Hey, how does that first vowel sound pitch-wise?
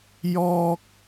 high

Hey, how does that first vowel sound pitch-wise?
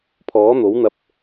rising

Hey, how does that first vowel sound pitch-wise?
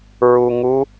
low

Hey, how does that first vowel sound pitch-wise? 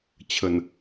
low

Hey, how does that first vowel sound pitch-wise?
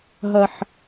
high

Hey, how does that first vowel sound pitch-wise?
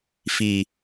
low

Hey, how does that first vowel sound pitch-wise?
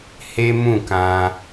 high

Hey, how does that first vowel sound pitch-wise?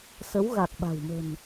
rising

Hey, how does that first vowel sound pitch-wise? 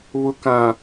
low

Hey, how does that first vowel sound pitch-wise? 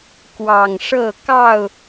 low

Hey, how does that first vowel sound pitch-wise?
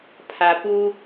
low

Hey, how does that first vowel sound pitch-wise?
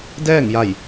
falling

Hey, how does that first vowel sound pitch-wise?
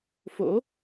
rising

